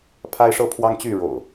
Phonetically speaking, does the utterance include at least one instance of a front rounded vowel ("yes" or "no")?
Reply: yes